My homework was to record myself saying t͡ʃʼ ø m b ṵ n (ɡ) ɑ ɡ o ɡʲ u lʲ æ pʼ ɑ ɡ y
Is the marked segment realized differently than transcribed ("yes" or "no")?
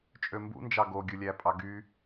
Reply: yes